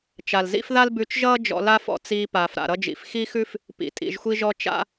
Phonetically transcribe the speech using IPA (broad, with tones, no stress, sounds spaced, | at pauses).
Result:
t͡ʃ a˩ l z ḭ˥ f ð a˥ l b ʉ˧ t͡ʃ ʒ ʌː˥ d͡ʒ ɔ̰˧ l a˥ f ɔ̰˧ t͡s iː˧ p aː˩ f ɾ a̰˩ ɾ ʌ˧ d͡ʒ ḭ˩ f x i˥ x ʉ˥ f | p ḭ˩ tʼ ḭ˩ ʒ xʷ i˧ ʒ ɔ˧ t͡ʃ a̰˧